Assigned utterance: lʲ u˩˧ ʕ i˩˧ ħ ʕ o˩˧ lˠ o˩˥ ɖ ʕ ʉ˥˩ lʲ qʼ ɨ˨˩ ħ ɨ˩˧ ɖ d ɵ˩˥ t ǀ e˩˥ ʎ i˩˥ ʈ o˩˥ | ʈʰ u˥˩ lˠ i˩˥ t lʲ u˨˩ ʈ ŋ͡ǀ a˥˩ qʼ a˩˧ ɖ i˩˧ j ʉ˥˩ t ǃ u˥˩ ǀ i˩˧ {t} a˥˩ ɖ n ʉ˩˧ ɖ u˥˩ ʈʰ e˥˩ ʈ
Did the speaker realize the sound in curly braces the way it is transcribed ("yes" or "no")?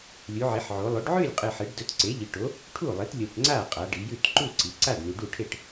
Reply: no